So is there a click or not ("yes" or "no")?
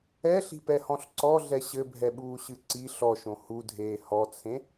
yes